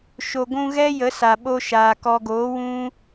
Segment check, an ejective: absent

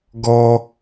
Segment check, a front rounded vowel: absent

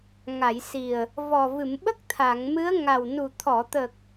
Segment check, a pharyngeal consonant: absent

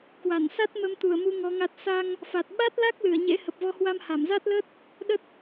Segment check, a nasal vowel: absent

